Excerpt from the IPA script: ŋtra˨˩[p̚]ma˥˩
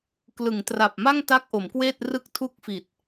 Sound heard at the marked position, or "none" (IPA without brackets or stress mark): p̚